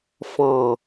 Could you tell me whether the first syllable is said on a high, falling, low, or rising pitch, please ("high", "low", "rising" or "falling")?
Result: low